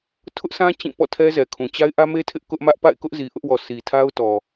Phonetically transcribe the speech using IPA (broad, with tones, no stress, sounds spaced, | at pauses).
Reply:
tʰ ʊ˦ ʔ s ã˦ t͡ɕ ĩ˦˨ p ɔ̰˦˨ tʰ ɛ˦ z ɛ˨ kʰ ũ˨ t͡ɕ a˦ ɪ̯ ʔ ä˦ m e˦ tʰ ɪ˦ ʔ k ʊ˦ ʔ m ä˦ ʔ p a̰˦˨ ɪ̯ k ʊ˦ ʔ z i˨ ʔ ʊ˦ ʔ w ɔ˨ sʰ i˨ tʰ a˦ ʊ̯ t ɔ˨